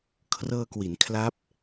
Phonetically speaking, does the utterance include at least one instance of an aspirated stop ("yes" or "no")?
yes